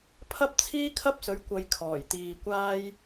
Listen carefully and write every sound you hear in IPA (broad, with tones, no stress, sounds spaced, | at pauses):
pʰ ɐ˥ p̚ t͡sʰ iː˥ kʰ ɐ˥ p̚ s ɵ˨˥ ɥ kʷ ɐ˨ j kʰ ɔː˨˩ j t̪ iː˨ kʷ aː˧ j